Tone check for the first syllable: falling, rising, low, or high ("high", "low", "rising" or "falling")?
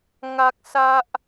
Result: high